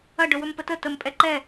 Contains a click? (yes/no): yes